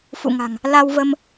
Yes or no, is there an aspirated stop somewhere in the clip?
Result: no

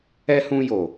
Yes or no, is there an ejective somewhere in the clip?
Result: no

